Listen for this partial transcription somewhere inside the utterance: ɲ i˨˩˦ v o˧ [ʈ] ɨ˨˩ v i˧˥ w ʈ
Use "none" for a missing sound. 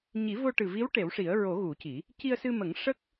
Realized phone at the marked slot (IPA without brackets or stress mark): ʈ